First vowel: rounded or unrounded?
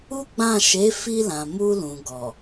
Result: rounded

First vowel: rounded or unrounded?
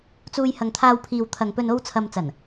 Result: rounded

